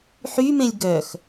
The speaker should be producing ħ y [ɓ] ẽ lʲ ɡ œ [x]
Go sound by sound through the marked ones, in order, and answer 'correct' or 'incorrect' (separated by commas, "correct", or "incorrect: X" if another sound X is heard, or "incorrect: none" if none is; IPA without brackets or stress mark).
incorrect: m, correct